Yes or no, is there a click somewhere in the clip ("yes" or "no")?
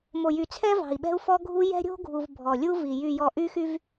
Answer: no